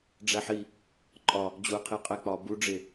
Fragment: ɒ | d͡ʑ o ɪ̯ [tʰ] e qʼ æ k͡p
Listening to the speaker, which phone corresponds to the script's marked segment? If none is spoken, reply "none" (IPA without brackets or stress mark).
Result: qʰ